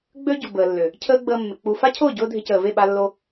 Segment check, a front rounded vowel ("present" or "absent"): present